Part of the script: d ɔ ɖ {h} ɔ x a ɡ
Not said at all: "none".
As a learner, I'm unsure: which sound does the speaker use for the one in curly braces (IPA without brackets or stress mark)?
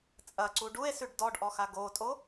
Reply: ʔ